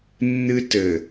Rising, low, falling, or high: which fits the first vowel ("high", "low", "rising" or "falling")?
high